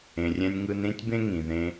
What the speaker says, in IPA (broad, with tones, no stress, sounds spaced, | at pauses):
ẽ˨ rʲ ɛ̃˧ nʲ ŋ ɯ˧ n ɾ ĩ˦ tʲ b ẽ˦ ŋ ĩ˨ ð ẽ˧